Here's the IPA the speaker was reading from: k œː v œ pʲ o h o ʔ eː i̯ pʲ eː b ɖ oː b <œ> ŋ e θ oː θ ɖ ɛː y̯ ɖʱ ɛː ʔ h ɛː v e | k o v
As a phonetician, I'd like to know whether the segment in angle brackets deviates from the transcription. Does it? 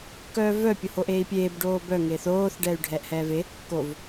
no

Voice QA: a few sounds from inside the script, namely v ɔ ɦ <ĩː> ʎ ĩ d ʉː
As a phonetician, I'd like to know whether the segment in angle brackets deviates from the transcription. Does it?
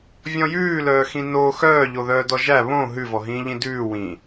no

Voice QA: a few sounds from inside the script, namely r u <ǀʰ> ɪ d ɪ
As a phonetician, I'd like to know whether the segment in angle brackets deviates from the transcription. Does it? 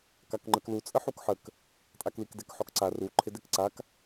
yes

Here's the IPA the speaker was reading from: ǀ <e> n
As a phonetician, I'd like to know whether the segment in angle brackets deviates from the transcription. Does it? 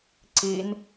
yes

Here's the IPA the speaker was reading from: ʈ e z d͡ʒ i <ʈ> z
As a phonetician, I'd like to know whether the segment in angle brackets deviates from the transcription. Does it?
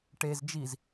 yes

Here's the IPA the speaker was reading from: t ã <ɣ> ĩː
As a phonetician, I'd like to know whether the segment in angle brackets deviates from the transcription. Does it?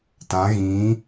no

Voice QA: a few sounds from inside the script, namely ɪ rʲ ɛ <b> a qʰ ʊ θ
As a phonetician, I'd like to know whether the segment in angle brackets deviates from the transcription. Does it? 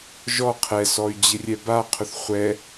no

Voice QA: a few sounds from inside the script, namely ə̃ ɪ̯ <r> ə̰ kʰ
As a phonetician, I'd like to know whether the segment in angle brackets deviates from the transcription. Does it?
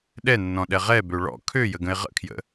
yes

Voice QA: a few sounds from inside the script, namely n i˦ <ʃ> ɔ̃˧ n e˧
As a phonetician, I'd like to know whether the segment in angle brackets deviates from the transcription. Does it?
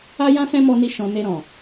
no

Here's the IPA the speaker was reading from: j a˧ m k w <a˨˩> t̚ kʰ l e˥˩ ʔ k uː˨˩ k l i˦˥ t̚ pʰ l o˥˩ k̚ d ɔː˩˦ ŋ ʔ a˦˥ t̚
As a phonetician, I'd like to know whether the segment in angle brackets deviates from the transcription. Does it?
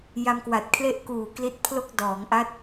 no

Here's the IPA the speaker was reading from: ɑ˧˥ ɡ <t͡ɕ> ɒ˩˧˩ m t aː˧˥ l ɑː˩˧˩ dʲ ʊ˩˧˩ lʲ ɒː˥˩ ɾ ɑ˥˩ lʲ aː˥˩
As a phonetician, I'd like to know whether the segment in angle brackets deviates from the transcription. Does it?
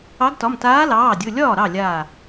yes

